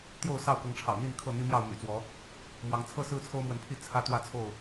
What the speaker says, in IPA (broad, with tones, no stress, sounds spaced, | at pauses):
t̪ j o˥˨ ʊ̯ s ɑ˥˨ ʊ̯ k ɤ˨˦ ŋ ʈ͡ʂʰ ɑ̰˨˩ ʊ̯ n̪ i˥˨ n kʰ ɤ˥˨ n̪ i˦ m j ɑ˥˨ ʊ̯ m y̰˨˩ t͡s w ɔ˨˦ | m w ɑ˨˦ ŋ t͡sʰ ɤ˦ s ɹ̩˦ t͡sʰ o˦ ʊ̯ m w ə˨˦ n pʰ i˥˨ t͡sʰ ä˦ t̪ w ä˥˨ t͡sʰ o˥˨ ʊ̯